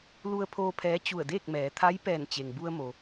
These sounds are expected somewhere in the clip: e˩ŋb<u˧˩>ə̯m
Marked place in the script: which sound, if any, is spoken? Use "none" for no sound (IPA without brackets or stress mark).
u˧